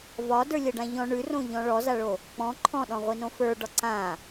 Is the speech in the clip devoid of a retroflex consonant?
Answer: no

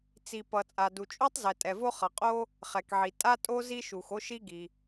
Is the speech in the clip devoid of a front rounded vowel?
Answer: yes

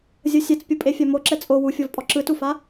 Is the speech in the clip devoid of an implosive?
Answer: yes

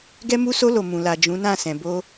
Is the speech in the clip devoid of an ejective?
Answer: yes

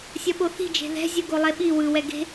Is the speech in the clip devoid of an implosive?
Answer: no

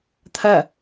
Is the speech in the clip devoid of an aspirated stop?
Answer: no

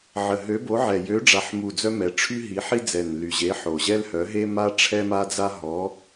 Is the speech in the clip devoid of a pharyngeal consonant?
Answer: no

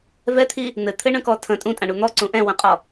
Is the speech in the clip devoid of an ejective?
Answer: no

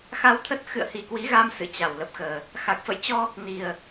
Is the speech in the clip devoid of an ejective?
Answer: yes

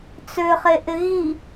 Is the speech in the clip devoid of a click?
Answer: yes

